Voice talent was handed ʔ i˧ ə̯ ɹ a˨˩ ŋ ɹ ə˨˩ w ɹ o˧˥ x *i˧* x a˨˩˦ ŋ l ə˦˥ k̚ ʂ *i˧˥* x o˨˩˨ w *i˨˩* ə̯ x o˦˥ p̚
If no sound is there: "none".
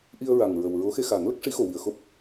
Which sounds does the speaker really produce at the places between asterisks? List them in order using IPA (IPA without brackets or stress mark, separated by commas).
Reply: e˧, i˧˥, i˨˩